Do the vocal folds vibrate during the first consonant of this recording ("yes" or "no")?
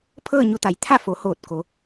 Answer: no